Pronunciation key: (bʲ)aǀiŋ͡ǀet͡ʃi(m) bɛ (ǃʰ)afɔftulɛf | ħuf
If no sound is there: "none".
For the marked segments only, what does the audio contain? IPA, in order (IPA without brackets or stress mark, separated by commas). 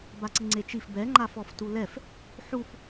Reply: b, f, ŋ͡ǃ